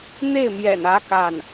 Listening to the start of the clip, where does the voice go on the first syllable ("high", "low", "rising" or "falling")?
falling